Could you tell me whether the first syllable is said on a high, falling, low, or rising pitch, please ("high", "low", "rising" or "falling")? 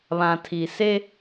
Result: low